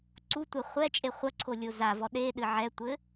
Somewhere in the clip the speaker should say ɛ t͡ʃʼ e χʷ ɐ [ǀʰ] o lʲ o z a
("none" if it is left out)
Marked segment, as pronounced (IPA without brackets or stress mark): ǀʰ